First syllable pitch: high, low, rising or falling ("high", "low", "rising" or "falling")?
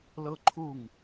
high